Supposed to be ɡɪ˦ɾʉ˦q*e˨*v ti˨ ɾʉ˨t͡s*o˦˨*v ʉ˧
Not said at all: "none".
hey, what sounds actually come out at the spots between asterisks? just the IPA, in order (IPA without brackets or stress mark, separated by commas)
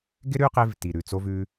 e˧, o˧